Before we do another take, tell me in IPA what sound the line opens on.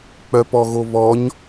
k͡p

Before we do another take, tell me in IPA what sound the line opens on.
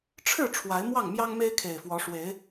ʈ͡ʂʰ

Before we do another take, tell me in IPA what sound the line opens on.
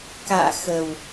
k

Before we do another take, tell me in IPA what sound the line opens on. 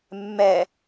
mː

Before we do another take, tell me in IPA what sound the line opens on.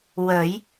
w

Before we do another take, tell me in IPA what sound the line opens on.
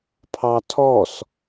pʰ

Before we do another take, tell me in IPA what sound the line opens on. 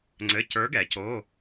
ŋ͡ǀ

